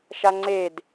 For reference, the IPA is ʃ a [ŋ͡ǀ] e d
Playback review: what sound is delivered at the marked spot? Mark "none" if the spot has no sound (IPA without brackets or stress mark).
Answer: ŋ͡ǀ